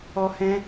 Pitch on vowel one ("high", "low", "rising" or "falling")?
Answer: high